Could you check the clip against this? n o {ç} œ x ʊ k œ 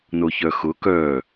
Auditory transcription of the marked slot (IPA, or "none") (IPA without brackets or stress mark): ç